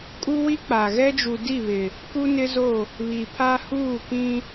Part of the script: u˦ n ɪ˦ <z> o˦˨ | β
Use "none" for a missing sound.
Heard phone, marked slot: z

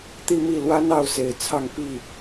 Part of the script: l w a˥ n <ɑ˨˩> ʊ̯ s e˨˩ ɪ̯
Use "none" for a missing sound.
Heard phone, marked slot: ɑ˥˩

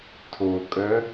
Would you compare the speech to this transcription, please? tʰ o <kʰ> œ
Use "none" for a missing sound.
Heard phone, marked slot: kʼ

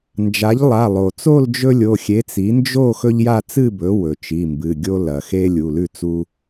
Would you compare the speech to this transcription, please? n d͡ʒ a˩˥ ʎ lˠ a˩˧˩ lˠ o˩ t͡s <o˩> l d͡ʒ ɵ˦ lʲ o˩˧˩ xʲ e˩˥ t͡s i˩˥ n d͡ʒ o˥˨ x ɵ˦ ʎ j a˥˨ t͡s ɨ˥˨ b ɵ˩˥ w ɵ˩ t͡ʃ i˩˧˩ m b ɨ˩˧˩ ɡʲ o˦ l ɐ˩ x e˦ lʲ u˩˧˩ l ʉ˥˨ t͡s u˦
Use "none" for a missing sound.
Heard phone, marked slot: o˥˨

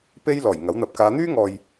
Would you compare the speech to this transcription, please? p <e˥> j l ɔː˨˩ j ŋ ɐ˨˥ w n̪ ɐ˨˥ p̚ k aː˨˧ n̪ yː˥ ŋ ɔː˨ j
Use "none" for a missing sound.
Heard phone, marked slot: e˥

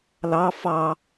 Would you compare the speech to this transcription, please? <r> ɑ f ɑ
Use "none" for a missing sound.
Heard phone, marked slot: l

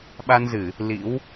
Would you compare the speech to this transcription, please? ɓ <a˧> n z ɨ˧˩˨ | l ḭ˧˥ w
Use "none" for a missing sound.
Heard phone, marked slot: a˧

